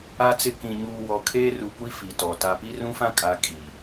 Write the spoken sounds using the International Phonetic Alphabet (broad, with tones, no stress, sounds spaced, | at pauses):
a˦ t͡s ɪ˦˨ k ĩ˨ ɲ uː˨ w ɔ˨ kʰ eː˦ r u˨ kʷ i˦ f i˨ t ɔ˨ t a˨ p i˦ r ũ˦ f ã˦ kʼ a˨˦ kʼ i˨